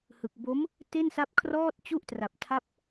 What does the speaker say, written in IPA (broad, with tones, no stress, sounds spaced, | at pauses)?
h ɯ˨˩ k̚ b o˦˥ m | t e˥˩ n s a˦˥ p̚ kʰ r ɔː˥˩ t̚ t͡ɕ u˥˩ ʔ t r a˨˩ p̚ tʰ a˦˥ p̚